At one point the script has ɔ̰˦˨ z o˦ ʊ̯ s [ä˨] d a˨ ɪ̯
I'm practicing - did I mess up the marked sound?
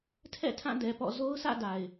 yes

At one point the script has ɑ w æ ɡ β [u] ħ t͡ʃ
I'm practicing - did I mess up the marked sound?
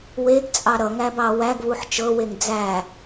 no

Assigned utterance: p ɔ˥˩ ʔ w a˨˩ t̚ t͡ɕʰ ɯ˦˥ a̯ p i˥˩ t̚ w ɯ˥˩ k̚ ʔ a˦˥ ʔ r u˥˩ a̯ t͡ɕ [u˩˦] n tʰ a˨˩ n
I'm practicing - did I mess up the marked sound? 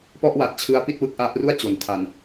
yes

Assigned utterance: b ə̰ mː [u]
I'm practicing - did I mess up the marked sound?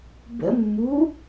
no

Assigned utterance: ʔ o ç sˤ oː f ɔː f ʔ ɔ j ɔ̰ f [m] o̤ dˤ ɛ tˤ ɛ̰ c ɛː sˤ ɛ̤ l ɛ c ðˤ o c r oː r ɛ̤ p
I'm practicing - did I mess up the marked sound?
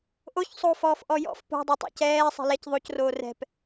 yes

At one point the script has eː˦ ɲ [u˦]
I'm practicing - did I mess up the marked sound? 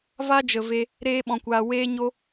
yes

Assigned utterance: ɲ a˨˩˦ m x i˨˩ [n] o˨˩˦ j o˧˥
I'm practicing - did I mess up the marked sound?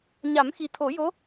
yes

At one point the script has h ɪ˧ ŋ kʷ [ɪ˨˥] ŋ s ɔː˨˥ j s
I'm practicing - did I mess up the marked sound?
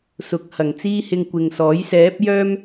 yes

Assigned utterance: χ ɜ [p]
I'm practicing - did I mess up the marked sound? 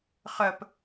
no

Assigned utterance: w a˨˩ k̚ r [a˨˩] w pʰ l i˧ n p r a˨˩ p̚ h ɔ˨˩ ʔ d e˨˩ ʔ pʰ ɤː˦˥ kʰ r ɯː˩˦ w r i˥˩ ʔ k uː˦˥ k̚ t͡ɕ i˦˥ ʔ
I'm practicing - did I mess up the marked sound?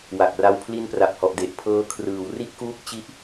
yes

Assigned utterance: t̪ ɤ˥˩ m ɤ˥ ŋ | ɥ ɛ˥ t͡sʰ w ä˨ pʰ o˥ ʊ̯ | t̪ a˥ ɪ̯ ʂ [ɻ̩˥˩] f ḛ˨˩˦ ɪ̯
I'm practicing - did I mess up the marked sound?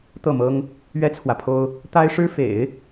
yes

